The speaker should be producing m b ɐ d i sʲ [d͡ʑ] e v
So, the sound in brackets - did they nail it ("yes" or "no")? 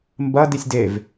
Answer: no